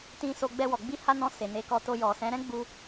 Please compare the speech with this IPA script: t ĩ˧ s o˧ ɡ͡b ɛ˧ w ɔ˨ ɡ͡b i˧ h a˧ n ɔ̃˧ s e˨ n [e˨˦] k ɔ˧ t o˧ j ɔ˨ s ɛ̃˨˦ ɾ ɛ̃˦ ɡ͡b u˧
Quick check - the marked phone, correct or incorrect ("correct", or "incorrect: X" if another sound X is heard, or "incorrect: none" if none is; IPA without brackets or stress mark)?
correct